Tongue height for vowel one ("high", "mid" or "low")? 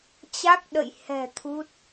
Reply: low